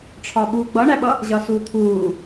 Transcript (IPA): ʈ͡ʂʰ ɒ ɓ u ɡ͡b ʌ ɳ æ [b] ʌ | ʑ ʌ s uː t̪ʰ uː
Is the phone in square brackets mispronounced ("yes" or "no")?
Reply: yes